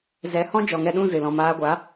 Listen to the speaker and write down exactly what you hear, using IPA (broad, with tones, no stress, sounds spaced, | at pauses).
z ɛ˨˦ h ɔ̃˦ d͡ʒ ɔ˨ ŋ ɛ˧ ɗ ũ˦˨ z ɨ˨ l ɔ̃˨ m aː˧ ɡʷ a˨˦